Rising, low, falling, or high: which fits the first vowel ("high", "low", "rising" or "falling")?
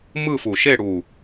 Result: falling